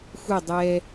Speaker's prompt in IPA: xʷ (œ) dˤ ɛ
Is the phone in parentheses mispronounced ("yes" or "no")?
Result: yes